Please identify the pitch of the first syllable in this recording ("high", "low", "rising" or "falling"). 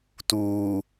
low